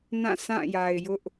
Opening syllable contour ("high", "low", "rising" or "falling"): falling